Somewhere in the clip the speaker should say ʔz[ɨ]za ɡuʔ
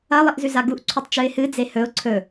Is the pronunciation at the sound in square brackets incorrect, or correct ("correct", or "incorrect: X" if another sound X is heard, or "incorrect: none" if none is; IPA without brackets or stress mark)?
incorrect: ʉ